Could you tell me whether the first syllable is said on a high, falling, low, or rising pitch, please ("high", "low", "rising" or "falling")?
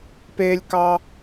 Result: high